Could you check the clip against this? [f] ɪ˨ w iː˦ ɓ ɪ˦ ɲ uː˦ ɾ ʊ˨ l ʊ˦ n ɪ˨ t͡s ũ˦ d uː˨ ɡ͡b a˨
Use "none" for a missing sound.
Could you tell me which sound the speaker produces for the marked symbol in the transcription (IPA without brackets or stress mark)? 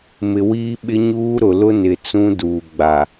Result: m